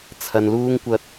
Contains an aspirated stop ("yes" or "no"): yes